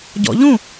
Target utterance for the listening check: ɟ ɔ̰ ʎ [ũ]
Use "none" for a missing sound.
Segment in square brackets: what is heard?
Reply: ũ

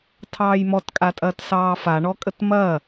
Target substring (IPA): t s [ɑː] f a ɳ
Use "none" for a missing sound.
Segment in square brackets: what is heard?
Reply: ɑː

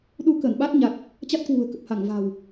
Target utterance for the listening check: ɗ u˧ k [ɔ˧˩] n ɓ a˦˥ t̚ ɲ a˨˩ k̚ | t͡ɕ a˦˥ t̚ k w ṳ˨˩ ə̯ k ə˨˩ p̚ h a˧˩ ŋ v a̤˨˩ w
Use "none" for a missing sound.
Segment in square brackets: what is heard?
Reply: ə˧˩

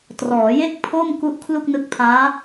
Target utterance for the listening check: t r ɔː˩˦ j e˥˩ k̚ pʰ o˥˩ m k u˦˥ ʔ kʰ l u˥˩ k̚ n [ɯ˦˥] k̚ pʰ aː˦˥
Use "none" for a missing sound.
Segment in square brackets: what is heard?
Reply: ɯ˦˥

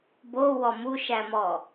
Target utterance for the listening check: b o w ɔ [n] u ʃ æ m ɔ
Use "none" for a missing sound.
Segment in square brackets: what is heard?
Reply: m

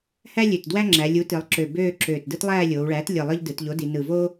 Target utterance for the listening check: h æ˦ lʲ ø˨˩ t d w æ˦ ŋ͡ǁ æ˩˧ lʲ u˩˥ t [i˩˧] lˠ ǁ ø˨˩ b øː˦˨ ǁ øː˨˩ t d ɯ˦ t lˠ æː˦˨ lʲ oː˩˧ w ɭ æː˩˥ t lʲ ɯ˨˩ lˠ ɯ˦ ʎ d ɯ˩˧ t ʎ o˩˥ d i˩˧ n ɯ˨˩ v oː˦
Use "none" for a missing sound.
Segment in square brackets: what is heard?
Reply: i˩˧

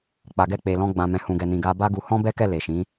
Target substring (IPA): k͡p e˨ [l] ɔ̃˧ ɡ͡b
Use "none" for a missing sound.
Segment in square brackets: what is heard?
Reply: l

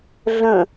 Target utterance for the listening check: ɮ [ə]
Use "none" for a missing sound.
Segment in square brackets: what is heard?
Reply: ə̃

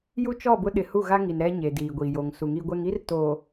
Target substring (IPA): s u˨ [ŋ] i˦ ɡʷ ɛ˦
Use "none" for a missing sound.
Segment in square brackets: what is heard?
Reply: ŋ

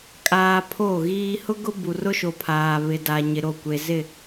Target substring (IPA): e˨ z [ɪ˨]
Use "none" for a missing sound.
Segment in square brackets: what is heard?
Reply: ɪ˦˨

